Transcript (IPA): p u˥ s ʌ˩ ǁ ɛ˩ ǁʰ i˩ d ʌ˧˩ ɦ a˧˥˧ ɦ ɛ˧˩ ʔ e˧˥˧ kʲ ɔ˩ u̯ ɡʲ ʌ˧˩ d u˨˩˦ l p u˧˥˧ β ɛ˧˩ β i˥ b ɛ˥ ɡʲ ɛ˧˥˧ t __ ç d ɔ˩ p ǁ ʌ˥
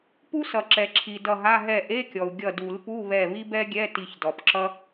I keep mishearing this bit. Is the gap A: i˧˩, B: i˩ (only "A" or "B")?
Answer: A